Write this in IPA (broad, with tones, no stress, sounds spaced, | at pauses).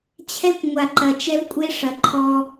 t͡ɕʰ ɛ˦ kʷ ŋʷ a˨ ǃ ɐ˨ t͡ʃ ɛ˦ v kʷʼ e˦ ʂ ɐ˨ ǃʰ ɔ˦